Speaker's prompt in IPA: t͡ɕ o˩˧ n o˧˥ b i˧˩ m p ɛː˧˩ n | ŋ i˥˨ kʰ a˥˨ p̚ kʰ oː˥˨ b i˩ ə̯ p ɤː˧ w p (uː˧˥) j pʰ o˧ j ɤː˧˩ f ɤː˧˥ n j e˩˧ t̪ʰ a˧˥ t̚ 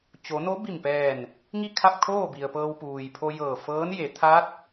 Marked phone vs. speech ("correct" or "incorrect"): incorrect